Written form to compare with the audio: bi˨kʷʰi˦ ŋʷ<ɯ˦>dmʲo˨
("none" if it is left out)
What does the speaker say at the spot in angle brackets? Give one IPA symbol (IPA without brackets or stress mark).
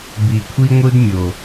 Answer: ɯ˦